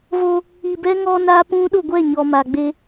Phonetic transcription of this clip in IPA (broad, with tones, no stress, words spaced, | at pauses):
vo˦ | i˨bɛ˦ ŋɔ˦na˦pũ˦ ɗʊ˦˨ɡʷɛ˦˨ɲɔ˨ ma˨ɡ͡be˦